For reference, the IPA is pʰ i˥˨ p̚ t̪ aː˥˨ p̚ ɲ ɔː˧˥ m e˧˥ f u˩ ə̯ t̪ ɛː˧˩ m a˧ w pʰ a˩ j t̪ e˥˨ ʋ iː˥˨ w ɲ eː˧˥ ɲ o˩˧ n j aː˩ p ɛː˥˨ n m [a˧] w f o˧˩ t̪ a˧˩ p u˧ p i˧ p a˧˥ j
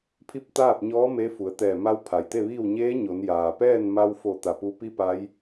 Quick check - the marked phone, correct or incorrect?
correct